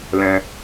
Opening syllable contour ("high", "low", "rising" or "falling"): high